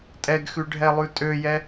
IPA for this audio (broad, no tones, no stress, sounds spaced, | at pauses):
tʼ ɛ ɡ x ʉ ɖʱ ɛ lˠ ʉ tʼ ø j ɛ